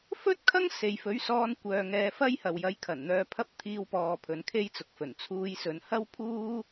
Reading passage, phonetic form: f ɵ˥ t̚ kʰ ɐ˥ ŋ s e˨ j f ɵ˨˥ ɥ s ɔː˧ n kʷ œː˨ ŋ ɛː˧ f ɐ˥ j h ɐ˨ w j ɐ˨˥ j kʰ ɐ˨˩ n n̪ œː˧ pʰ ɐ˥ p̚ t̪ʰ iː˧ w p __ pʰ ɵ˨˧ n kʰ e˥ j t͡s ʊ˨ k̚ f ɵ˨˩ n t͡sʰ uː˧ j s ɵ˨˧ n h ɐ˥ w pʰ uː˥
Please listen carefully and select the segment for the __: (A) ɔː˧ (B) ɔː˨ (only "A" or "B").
B